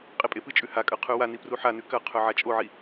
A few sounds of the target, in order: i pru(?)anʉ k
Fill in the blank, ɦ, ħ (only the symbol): ħ